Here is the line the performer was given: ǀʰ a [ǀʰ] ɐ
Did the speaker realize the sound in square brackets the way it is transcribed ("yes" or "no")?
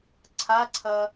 yes